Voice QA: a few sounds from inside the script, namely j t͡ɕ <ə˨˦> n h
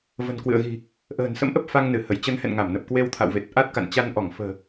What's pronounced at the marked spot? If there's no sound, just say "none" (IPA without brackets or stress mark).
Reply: ə˨˦